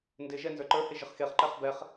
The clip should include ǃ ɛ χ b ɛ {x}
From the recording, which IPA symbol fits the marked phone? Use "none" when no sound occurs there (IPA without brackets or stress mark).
χ